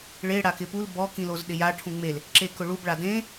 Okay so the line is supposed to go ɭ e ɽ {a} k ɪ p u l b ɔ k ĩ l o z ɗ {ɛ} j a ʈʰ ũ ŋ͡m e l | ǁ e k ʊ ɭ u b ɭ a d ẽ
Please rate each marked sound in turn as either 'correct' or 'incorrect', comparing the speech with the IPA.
correct, incorrect: ɪ

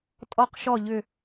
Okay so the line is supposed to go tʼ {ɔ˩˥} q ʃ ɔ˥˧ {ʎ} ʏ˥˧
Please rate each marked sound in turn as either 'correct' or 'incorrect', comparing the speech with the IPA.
incorrect: ɔ˥˧, correct

